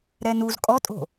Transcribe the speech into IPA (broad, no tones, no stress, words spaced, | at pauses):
ɾɛnuz kʼɔtʼo̤